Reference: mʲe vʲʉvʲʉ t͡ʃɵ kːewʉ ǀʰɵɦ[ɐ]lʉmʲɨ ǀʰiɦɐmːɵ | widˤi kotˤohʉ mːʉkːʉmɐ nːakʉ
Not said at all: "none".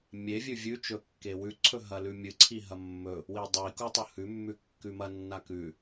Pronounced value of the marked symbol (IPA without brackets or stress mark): ɐ